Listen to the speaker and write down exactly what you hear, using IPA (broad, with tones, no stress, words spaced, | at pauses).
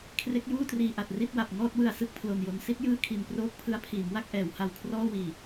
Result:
kʰre˦˥k̚juː˥˩triː˨˩ ʔa˨˩t̚ri˥˩t̚wa˨˩p̚ ŋɔː˥˩t̚wɯ˨˩a̯ sɯ˥˩k̚pʰlo˨˩njo˧n si˦˥t̚jɯː˥˩ kʰi˨˩nproː˥˩k̚pʰɯ˦˥a̯ pʰiː˩˦mwa˥˩k̚ʔɛː˩˦wha˨˩w kʰrɔː˥˩wiː˨˩